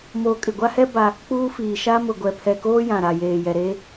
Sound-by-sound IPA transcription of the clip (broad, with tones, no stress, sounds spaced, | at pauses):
m oː˨ kʼ ɪ˨ ɡʷ a˦ h ɛ˦ b a˦ | k͡p uː˦ f iː˨ ʃ a˦ m ʊ˨ ɡʷ ɛ˨ pʰ ɛ˨ k oː˦ j ã˨ ɾ a˨ j eː˨ j ɛ˨ ɾ eː˦